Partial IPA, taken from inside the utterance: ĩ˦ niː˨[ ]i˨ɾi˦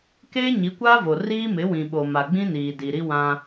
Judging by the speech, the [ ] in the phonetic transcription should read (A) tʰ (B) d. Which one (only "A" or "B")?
B